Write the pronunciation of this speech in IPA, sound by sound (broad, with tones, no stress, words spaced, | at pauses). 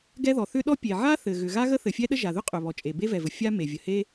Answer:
ɡɛ˥ðɔ˩ θʏ˥ɗɔ˥pʲe˩ ʕa˥θɘ˩ ɣʏ˩ɣa˥ɣə˥ θɘ˩fʲɛ˥ɗə˥ ʒa˩ðʏ˥qʼʏ˩βɔ˩ t͡ʃʼe˩be˥vɛ˩vɘ˩ fʲa˥me˩ vʲə˩he˥